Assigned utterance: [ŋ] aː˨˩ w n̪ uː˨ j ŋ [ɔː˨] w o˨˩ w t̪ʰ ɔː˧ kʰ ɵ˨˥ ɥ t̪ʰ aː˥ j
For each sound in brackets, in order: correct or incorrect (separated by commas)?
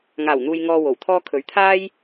correct, correct